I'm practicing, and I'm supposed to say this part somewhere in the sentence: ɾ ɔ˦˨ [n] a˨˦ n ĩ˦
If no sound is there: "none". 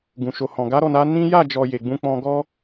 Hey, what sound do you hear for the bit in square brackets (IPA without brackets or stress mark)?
n